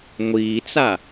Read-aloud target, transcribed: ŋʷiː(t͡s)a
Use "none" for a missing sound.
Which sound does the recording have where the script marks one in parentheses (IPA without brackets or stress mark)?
t͡s